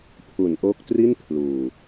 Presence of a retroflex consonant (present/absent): absent